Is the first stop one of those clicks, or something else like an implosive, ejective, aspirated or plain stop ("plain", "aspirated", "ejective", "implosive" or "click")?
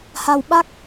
implosive